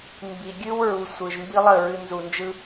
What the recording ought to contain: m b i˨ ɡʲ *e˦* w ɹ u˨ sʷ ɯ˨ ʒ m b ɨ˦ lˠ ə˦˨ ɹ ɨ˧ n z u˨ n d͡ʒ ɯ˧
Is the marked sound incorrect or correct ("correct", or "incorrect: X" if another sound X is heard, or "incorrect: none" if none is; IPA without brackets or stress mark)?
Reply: incorrect: ɨ˦